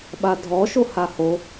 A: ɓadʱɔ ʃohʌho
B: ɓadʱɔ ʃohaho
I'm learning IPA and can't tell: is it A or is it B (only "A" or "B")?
B